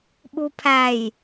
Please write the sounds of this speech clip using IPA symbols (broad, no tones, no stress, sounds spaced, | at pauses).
ɓ u pʰ æ j